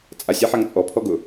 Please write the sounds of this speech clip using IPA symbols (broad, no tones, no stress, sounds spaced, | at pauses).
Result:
t͡sʼ a sʲ ɛ ħ a ŋ t͡sʼ ɔ pʰ ɔ ɡ ʊ